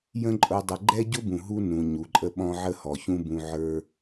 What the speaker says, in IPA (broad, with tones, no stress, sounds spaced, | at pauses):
j ə̃˦ ǃʼ ʊ˧ dˤ ə˨ ɡ͡ǃ ɛ˦ ɟ ʊ˦ b ũ˨ ɦ u˦ n ũ˨ ɲ u˨ ǃʼ ə˦ ɓ ɔ̃˦ ʕ ə˦ h ɔ˨ ç ũ˦ b ũ˧ ʕ ə˞˧